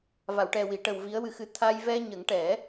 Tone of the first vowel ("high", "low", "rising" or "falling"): low